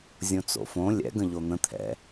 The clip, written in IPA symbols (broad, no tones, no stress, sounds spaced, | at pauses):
zʲ õ t͡s o̰ f õ lʲ ɛ̰ ɡ ə̃ ʎ o n̪ ə̃ t̪ʰ ɛ̰